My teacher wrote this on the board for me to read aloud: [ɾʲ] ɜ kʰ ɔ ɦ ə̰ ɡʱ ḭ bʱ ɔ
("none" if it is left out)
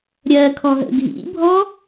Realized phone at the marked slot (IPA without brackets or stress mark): ɾʲ